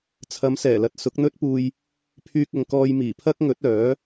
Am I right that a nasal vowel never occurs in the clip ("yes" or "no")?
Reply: yes